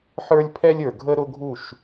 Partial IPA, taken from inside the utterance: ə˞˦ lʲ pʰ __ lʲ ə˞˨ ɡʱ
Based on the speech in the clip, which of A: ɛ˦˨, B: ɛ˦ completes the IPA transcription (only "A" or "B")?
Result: B